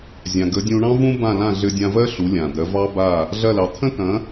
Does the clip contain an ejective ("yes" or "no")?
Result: no